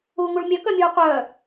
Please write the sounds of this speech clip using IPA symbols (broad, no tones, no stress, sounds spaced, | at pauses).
uː ŋ u ɭ mʲ œ k œ mʲ uː qʷ œː